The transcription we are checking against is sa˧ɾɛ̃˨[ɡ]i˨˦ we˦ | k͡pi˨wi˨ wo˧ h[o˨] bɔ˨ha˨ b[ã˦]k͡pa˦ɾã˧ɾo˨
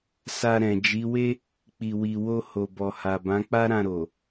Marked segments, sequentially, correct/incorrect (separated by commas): incorrect, correct, incorrect